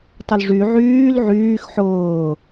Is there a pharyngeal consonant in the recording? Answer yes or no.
yes